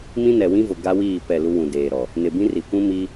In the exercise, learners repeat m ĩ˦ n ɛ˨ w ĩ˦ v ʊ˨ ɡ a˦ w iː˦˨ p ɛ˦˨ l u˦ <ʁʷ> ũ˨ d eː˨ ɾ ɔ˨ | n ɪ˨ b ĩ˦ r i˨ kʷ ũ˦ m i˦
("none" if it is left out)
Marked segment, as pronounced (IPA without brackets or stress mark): w